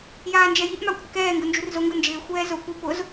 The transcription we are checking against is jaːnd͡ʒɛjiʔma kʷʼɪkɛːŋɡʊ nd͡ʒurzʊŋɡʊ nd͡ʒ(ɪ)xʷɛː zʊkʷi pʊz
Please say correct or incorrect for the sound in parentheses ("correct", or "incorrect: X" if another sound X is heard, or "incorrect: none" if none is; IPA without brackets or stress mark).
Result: incorrect: ɪː